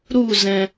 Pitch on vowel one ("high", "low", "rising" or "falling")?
falling